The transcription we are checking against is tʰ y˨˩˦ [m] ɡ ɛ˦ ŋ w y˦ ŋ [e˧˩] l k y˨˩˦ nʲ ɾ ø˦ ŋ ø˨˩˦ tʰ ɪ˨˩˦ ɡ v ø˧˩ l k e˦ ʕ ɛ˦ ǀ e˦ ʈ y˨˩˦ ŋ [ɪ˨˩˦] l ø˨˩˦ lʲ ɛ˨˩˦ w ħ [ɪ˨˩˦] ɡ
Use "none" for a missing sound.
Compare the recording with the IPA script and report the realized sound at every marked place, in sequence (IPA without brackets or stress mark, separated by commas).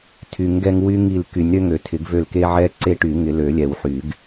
ŋ, i˧˩, ɪ˨˩˦, y˨˩˦